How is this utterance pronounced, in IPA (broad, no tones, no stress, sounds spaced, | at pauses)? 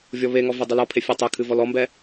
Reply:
vʲ ɔ β e ŋ ɔ v ɛ dˤ ɨ l ɔ pʰ e fʲ a tˤ e kʰ ɨ v ɔ l ɔ m b ɛ